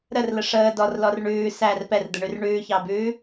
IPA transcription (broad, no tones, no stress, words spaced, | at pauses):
ɾərlə ʂəː dɔrlɔr ɳʉː sær pɛrd̪əɳʉr ɳʉːçɑbʉː